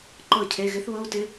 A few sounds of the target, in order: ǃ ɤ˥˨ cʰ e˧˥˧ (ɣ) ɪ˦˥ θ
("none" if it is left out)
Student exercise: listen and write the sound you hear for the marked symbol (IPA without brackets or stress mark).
ɣ